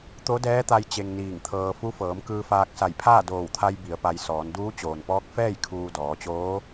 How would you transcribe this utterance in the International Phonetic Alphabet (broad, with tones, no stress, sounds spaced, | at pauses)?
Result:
t̪ o˧˥ d ɛː˧˥ t̪ a˧ j t͡ɕ e˧ ŋ n iː˧˩ ŋ t̪ʰ ɤː˧ f u˧˥ f ɤː˩˧ m k ɯː˧ f aː˧ k̚ s a˧˩ j pʰ aː˥˨ d oː˧˩ w t̪ʰ a˧ j b i˩˧ ə̯ p a˧ j s ɔː˩˧ n d uː˧˥ t͡ɕ oː˩ n p ɔː˧˥ k̚ f ɛː˥˨ j kʰ uː˧ d ɔː˩˧ t͡ɕ oː˧˥